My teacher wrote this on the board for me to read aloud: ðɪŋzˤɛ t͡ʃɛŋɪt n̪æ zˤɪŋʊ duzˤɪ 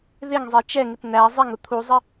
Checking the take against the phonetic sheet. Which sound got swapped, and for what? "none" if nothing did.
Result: d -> t̪ʰ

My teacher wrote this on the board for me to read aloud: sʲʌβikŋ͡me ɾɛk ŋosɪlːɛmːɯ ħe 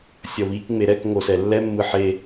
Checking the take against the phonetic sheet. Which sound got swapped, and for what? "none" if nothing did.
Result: ɪ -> ɛ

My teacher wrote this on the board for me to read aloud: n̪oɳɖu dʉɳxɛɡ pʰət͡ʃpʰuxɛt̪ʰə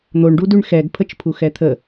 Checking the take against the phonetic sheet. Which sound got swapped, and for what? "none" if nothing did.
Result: none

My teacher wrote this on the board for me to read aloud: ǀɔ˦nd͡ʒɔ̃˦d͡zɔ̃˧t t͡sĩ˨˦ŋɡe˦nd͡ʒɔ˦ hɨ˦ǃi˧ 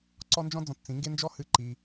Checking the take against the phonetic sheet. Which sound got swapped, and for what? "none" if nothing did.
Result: none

